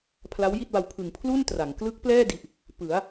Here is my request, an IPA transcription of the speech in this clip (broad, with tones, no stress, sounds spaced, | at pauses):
pʰ l a˦˥ w j i˥˩ t̚ b a˧ w pʰ ɯ˨˩ ŋ pʰ l u˥˩ n t r a˩˦ ŋ k l ɯ˦˥ k̚ p l ɛː˥˩ d i˨˩ ʔ | p ɯ˩˦ a̯